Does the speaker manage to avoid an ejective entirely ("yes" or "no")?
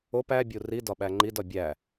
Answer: yes